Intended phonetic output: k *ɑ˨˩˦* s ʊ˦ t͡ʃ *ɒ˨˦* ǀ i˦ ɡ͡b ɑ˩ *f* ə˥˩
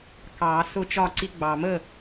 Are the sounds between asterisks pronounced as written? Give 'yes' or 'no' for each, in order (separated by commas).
yes, no, no